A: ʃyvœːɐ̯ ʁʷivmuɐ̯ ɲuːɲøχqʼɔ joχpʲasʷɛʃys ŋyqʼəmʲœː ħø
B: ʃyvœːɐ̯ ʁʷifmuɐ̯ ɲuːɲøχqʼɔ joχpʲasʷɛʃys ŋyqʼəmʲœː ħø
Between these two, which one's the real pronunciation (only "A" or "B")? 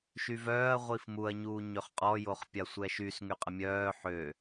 B